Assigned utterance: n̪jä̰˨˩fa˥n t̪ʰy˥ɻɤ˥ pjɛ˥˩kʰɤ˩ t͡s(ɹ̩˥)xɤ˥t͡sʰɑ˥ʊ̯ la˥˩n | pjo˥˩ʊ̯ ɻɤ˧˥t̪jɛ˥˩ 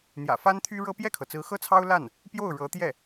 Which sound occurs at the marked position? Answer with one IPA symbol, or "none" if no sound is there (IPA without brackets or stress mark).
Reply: ɹ̩˧˥